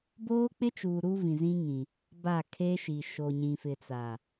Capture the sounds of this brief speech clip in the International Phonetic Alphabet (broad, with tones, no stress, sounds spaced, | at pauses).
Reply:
b oː˦ k͡p ɪ˦ t͡ʃ uː˨ ɾ u˦ v ĩ˨ z ĩ˦ ŋ ĩ˨ | b a˦˨ kʰ eː˦ ʃ i˨ ʃ o˨ ɲ ĩ˨ f ɪ˨ t͡s a˨